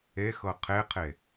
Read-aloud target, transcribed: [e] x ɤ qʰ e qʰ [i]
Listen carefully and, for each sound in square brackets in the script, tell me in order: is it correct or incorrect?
correct, incorrect: e

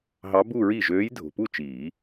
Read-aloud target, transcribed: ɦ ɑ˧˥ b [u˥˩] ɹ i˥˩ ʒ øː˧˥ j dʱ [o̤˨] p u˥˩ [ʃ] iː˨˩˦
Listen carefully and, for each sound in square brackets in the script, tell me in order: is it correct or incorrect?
incorrect: u˥˧, correct, incorrect: t͡ʃ

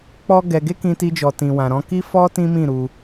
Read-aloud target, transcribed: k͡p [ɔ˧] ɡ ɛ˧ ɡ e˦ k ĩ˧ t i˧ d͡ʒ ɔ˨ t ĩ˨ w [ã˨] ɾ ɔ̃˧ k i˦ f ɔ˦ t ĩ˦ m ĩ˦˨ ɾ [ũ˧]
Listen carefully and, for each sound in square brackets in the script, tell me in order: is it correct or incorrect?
incorrect: ɔ˦, correct, incorrect: u˧

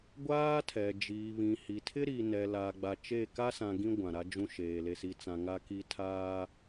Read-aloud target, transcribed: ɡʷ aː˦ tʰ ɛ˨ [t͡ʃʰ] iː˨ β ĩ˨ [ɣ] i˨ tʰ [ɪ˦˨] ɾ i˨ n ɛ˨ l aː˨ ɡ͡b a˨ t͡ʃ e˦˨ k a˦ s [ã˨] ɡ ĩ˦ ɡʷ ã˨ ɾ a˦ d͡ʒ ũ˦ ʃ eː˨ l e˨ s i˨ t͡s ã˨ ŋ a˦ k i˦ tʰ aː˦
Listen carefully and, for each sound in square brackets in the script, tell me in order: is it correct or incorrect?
incorrect: d͡ʒ, incorrect: h, incorrect: ɪ˦, correct

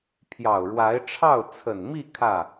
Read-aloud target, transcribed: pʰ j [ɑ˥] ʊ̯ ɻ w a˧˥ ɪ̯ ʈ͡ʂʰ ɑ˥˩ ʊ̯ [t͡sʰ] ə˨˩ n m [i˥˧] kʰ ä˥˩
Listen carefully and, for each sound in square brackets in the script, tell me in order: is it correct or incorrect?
incorrect: ɑ˨˩, correct, correct

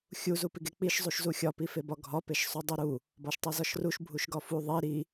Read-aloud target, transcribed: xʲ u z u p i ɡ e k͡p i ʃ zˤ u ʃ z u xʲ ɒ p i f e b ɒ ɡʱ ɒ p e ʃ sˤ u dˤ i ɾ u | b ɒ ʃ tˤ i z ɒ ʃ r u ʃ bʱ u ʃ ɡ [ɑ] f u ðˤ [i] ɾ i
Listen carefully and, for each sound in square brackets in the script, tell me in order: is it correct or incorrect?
incorrect: ɒ, correct

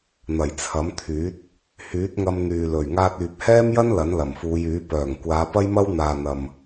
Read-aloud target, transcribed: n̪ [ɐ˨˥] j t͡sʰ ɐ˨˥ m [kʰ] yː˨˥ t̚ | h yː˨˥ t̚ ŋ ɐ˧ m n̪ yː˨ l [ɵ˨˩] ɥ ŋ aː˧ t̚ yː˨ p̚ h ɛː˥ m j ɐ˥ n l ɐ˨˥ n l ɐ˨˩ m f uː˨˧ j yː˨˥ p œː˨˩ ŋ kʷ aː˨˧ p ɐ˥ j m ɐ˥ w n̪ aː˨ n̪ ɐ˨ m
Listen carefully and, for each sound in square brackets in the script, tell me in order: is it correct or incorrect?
incorrect: ɐ˨˩, incorrect: t̪ʰ, correct

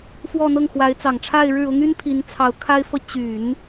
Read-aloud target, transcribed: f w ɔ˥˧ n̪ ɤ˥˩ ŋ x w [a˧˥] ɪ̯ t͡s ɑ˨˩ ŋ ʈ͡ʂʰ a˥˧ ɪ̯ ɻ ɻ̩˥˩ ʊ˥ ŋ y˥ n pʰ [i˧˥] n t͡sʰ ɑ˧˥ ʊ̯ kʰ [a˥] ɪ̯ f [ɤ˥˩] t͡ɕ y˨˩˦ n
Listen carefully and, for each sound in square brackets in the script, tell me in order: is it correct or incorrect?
correct, correct, correct, correct

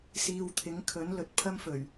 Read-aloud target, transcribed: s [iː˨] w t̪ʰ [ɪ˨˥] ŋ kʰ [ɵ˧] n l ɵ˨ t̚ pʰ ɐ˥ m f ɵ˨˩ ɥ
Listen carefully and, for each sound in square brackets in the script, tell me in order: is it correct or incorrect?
correct, correct, incorrect: ɵ˨˥

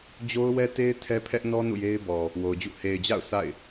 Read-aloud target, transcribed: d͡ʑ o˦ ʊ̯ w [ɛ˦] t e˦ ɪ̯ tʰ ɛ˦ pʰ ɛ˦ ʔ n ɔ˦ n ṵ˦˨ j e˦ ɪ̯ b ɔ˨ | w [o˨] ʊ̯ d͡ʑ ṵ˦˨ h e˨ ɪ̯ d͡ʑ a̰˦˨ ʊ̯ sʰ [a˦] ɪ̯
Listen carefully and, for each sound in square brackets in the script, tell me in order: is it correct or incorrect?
correct, correct, incorrect: a̰˦˨

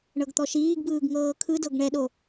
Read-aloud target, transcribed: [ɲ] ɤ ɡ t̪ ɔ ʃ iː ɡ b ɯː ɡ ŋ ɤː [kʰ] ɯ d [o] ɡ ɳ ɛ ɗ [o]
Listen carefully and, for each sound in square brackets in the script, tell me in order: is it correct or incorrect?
incorrect: ɳ, correct, incorrect: ɤ, correct

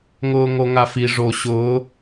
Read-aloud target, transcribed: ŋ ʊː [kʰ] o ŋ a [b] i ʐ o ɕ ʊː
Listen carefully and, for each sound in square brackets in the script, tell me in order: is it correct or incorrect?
incorrect: ŋ, incorrect: f

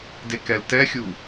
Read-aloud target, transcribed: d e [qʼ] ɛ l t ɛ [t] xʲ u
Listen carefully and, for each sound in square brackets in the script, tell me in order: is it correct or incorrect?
incorrect: k, incorrect: none

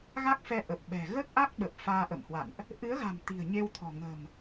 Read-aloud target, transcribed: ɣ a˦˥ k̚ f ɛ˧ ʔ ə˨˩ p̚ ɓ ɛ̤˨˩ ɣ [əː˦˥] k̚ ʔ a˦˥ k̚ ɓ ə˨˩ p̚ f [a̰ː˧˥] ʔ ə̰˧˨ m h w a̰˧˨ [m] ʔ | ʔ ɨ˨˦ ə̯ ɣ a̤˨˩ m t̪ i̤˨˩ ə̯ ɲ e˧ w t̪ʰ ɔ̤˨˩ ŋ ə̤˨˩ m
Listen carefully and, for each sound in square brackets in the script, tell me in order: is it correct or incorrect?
correct, incorrect: aː˧, incorrect: n

